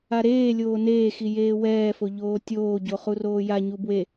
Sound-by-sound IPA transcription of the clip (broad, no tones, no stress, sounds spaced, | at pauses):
a ɾ eː lʲ oː n eː x i j eː w ɛː f o ʎ oː tʲ oː ɟ o χ u r oː j a ɲ u b w e